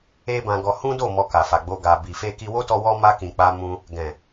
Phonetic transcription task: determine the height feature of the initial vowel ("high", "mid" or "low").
mid